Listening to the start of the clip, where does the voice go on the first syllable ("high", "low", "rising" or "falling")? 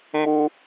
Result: high